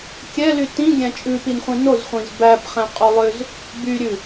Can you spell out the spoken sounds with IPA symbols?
kʲɛly tĩɡʲæ̃ t͡ʃʼʉpinχʷĩ nozχʷĩz bæpχɛ̃qʼolˠøz | byɾʲʉ

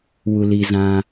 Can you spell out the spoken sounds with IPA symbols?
wu˨liː˨ zã˦

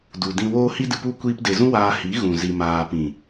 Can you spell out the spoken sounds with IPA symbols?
du˨dĩ˧woː˦ hi˧dɨ˨pu˧ kʷiː˧pde˨zũ˦ waː˧hi˨˦ɣũ˨ zi˨maː˨pĩ˨

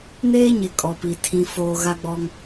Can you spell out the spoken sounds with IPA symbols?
neː˦ɲɪ˨ kʼɔ˨pi˨ tʰĩ˨foː˨ ɣa˦ɡ͡bɔ˦ŋ

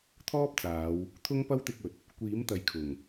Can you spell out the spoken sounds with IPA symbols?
t̪ʰɔː˥p̚t͡saː˨˧w | t̪ʰʊ˥ŋpɐ˥wt̪ɪ˧k̚ɵ˨t̚ | kʷiː˨˥mt̪ɐ˨jkʰʊ˨˩ŋ

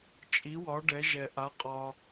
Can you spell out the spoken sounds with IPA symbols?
t͡ʃʼi˨˦wɒ˨˦ ɖɛ˨˦ʒɛ˨ ʔa˨˦qʼɒ˨

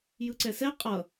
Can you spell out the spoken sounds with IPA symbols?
jɯǀɛsɛ qʼʌ

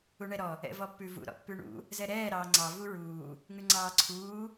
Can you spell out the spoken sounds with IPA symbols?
uɳɛɾɔ | ɛ̰vɔpːʉvṵ ɾɔ̰pːʉɳṵ | zɛɾɛː ɾɑːŋ͡ǀɑ vuɹuː | ŋʉŋ͡ǀɑːǀʰuː

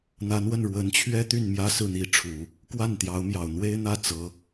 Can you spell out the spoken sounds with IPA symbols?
n̪a˧˥nwə˥˩n ɻwə˧˥nt͡ɕʰɥɛ˥ t̪y˥˩nmjä˥sɹ̩˥˩n̪i˧˥ ʈ͡ʂʰu˨˩˦ | kwa˥˩nt̪jɑ˧˥ʊ̯mjɑ˨˩ʊ̯ n̪we˥ɪ̯ n̪ä˥˩ t͡sɤ˧˥

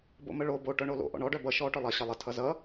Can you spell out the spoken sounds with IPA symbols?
bo̰məɭo bo ʈœɳolo̰ʔɔ̰ɳ ɔɖœ bʌ ʃɔ ʈœlˠʌ ɕʌlˠə tʰʌzʌ

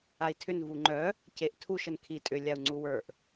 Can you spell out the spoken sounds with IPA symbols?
ai̯tʰʏn vuŋ͡ǃœ | ceʔtʰuʃ ənkʰi tʼʏ lʲau̯ŋ͡ǀuwə˞ʔ

